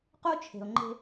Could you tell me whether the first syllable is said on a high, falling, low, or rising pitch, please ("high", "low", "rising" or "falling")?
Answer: high